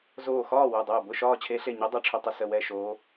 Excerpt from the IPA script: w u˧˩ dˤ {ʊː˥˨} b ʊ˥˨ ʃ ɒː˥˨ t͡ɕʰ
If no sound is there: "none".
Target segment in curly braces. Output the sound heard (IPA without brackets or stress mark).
ʊː˧˩